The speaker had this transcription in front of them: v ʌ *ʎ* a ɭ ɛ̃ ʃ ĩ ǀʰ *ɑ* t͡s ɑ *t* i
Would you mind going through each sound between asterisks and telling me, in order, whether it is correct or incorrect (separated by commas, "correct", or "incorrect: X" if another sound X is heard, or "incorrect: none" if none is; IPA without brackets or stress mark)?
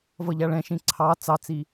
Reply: correct, correct, incorrect: t͡s